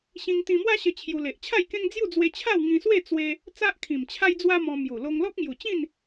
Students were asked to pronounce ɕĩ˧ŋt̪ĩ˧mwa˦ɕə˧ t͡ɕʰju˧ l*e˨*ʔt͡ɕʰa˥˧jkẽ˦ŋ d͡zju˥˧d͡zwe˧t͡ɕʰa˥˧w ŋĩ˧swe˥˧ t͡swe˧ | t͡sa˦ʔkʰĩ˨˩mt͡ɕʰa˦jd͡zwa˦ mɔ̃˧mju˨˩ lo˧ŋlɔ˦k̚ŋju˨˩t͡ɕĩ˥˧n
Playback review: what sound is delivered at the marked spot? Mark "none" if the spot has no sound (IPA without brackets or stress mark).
e˨